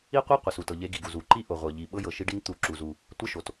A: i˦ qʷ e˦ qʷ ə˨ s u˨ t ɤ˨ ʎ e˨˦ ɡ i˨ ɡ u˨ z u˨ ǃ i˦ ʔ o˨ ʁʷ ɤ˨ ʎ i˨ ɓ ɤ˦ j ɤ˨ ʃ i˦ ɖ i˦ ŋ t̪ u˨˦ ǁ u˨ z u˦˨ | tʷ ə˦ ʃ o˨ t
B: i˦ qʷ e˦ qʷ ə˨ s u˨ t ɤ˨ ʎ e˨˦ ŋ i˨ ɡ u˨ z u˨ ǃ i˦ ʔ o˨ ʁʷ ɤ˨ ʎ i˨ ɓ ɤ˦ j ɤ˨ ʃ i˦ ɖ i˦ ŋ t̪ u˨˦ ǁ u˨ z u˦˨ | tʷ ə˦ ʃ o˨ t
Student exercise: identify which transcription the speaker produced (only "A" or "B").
A